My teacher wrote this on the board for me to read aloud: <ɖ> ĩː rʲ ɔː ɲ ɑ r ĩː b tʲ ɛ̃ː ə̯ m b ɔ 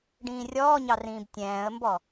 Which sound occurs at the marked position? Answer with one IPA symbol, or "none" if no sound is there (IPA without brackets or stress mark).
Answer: ɖ